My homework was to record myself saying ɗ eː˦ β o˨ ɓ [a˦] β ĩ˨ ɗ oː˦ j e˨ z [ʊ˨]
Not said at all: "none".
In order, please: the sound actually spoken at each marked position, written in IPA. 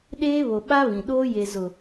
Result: a˦, ʊ˨

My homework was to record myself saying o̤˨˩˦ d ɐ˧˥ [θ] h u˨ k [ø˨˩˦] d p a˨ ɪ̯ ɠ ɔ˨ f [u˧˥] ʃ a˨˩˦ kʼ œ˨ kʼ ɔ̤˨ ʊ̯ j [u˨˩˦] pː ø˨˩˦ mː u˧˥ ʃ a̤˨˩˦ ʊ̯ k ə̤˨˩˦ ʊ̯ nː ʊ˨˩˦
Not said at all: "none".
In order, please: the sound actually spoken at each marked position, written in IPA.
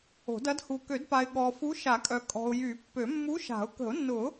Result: d, ø˨˩˦, u˧˥, y˨˩˦

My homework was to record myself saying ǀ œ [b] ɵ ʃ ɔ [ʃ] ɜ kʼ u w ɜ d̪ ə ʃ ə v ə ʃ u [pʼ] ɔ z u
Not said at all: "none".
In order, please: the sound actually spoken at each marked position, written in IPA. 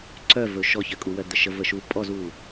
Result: v, ç, pʼ

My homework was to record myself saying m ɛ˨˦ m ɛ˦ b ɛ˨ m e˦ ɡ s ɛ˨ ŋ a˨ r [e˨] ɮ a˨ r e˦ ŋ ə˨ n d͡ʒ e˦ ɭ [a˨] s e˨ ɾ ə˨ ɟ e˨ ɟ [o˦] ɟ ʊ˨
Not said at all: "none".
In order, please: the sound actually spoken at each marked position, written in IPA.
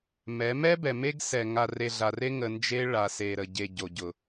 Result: e˨, a˨, o˨

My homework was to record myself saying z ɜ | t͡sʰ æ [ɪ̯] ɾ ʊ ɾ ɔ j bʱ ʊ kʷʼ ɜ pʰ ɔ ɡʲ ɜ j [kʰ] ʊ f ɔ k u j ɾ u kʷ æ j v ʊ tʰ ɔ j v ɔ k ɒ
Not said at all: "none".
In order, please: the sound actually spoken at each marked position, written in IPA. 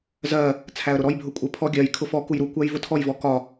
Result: ə̯, kʰ

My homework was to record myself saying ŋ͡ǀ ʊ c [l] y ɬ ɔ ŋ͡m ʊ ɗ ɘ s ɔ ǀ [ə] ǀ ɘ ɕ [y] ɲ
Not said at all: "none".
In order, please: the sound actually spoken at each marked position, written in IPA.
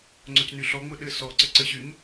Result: n, ə, y

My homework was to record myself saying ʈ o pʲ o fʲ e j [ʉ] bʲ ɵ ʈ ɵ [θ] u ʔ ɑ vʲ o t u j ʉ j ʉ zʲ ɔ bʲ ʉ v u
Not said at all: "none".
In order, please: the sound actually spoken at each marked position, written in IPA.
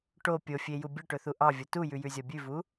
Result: u, θ

